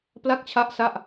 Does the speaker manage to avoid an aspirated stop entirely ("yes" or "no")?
no